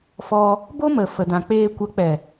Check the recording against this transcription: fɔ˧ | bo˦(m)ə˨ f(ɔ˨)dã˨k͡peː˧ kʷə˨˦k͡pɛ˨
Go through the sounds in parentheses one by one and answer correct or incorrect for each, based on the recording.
correct, incorrect

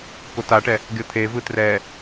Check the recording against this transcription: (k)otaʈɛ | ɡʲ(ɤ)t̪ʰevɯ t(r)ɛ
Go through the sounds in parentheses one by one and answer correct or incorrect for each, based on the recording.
correct, correct, correct

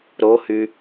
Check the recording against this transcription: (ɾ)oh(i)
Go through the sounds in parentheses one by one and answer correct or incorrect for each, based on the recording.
correct, incorrect

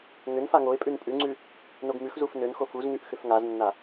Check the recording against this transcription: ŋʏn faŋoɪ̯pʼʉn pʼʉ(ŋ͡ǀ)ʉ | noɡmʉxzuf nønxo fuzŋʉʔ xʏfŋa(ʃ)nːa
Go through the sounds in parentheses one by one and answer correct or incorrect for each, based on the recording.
correct, incorrect

